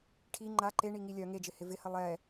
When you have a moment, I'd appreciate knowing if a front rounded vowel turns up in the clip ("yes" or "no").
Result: yes